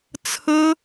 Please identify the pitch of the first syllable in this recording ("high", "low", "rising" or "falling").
high